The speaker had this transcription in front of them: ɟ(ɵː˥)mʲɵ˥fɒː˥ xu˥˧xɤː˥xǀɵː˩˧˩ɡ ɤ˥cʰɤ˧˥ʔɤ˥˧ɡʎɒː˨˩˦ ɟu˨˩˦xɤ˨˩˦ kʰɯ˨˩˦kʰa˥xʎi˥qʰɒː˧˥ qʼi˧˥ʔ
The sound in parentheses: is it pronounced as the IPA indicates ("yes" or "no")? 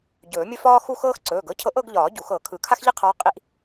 no